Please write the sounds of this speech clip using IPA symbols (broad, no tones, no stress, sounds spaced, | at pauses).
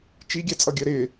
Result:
t͡ʃ i ɡʲ æ t͡sʼ ʌ ɡʲ ɜ ɾ ɪ